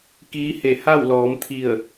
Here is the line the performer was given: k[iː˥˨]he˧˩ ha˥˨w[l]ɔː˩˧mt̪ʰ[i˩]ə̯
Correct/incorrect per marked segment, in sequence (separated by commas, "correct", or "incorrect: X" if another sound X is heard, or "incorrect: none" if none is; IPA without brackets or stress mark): incorrect: iː˧˥, correct, incorrect: i˧˩